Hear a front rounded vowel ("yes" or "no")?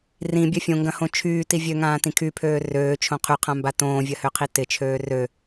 yes